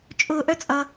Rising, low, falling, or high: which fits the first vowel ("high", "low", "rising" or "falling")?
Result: high